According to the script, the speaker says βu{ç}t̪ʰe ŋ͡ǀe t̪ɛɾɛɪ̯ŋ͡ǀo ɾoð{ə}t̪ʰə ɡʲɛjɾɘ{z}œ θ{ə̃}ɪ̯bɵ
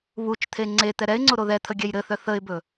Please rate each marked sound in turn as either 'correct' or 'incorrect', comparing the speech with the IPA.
incorrect, incorrect, incorrect, incorrect

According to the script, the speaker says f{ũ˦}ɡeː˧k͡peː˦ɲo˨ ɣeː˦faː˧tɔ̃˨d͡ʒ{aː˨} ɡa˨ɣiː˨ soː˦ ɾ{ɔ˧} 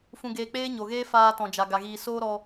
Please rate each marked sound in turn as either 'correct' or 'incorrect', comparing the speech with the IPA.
incorrect, incorrect, correct

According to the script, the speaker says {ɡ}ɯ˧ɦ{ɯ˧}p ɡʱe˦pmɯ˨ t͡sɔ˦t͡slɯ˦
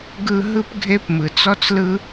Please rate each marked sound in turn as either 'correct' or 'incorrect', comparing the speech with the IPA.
correct, incorrect

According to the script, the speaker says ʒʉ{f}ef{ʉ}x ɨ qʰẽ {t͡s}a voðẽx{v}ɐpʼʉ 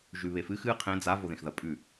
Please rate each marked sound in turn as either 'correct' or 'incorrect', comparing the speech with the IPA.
incorrect, incorrect, incorrect, incorrect

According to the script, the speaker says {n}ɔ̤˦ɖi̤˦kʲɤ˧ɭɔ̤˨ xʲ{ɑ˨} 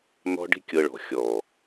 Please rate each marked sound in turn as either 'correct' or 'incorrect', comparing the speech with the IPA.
correct, incorrect

